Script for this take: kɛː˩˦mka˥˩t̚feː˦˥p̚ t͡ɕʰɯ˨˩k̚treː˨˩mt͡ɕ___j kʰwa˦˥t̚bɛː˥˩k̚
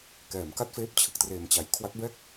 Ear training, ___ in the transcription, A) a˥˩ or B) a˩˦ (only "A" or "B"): B